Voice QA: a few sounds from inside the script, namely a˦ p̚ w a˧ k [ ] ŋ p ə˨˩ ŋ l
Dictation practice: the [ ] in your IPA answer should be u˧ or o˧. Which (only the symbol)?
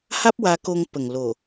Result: o˧